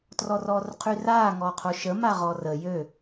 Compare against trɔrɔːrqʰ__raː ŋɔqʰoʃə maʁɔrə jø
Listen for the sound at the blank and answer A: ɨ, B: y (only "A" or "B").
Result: B